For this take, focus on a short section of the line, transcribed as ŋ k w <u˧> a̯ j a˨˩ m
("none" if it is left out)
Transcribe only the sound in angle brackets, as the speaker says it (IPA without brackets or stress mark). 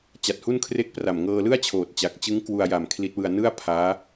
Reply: u˧